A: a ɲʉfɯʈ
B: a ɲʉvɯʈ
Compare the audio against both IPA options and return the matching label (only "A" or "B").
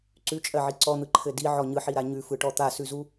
A